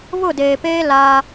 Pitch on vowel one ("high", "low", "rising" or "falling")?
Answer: falling